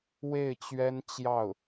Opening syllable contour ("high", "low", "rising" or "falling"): falling